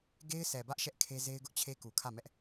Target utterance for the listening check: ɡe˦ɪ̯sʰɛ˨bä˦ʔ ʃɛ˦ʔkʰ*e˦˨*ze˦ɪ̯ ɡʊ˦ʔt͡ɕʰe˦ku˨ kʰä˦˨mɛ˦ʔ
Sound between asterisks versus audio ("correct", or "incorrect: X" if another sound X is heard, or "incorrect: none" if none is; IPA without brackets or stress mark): incorrect: e˦